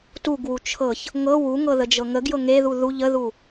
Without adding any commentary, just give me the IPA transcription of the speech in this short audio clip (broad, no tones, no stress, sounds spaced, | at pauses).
t u ɡ w u t͡ʃʰ ɤ ç | ŋ ɤ w u ŋ ɤ ð ə d͡ʒ ɤ ŋ ə ɡ j ɤ ŋ e ð u ð u ʎ ə ð u